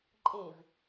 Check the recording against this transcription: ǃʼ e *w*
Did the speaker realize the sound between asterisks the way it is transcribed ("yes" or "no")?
no